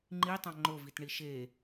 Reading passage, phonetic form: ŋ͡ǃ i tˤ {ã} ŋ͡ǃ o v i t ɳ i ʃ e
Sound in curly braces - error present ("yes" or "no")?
no